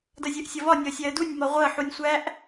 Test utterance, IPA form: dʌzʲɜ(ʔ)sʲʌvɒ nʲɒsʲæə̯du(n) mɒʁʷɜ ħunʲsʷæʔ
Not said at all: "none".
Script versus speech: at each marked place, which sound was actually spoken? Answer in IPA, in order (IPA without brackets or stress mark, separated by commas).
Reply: ʔ, nʲ